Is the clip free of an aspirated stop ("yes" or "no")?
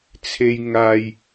no